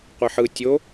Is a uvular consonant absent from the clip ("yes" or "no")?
no